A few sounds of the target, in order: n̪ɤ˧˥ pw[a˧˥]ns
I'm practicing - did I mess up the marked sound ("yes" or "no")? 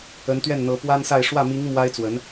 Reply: yes